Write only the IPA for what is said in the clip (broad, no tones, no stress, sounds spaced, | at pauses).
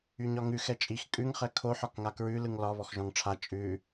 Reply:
y ɲ ɒ ŋ ʉ x ɛ t͡ʃʼ i x kʼ ʉ ŋ χ ɛ kʰ o ħ ɒ k ŋ a k ɹ ʉ l ɯ ŋ l ɒ β ɔ x ʒ ɔ̃ ŋ ʈ͡ʂʰ a t͡ʃʼ ʉ